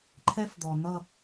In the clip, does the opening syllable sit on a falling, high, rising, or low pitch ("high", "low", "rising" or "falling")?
high